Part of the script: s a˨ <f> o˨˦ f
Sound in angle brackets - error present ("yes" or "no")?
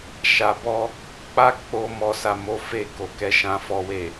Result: yes